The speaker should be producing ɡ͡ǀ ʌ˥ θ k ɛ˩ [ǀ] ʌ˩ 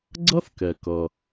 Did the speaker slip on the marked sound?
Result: yes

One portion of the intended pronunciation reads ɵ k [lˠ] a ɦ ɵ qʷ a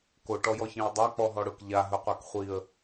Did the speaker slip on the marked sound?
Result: yes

